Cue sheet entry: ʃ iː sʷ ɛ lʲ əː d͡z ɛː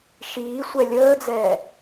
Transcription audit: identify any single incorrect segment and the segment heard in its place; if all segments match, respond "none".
none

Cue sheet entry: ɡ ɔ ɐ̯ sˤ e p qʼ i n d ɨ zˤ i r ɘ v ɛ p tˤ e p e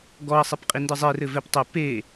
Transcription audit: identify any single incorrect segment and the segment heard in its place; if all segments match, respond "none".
none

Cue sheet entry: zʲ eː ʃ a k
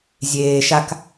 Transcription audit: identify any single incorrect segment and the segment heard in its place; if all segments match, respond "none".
none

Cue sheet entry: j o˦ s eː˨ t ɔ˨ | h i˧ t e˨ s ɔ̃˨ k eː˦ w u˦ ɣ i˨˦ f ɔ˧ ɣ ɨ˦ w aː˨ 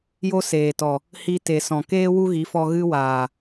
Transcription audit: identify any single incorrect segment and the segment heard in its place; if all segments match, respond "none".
none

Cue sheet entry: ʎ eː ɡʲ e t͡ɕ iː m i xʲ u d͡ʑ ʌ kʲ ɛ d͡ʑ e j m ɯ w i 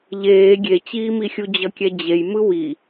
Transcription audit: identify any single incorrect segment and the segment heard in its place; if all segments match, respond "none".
none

